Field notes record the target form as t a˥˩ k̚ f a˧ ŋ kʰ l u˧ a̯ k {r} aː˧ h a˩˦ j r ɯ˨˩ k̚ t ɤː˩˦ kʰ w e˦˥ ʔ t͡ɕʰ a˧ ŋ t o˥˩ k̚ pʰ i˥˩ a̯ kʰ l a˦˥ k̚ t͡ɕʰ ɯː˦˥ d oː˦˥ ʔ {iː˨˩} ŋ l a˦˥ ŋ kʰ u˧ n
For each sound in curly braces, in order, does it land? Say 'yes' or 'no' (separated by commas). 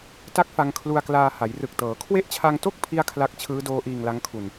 no, no